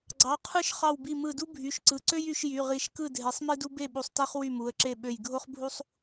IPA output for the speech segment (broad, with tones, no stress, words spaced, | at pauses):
ɡ͡ǀɑ˩˧˩qʰɯ˥˨ʃ χɑ˧˩wbi˧˩mɯ˧˩du˥ bʱy˩˧˩ʃǀɯ˩˧˩ǀø˥j y˨˦ʃ jy˩˧˩ʁi˨˦ʃkɯ˥˨ dʱe˨˦sˤmi˥du˥ be˥˨ɓu˧˩sˤtæ˥χ wy˥˨mu˩˧˩ə̯ǁe˥˨ ɓø˧˩jɡʱo˥χbʱu˥sˤ